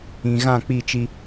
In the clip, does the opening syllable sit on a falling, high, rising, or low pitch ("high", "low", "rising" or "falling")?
low